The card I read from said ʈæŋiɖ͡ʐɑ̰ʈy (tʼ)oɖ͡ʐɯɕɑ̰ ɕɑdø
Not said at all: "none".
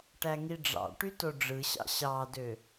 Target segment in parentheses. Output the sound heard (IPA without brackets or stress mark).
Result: t